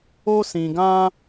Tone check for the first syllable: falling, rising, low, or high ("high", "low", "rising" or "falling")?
high